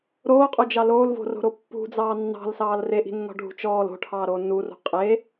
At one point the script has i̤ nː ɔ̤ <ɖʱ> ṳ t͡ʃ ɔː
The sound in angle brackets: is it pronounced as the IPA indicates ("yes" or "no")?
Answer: yes